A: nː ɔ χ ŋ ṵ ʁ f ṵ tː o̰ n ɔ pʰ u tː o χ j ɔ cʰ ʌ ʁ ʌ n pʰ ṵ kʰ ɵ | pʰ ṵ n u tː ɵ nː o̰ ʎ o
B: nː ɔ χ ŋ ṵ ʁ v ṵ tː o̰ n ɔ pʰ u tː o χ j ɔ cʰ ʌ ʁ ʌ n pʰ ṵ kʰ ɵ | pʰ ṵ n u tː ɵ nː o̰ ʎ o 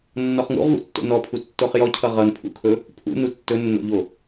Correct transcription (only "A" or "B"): B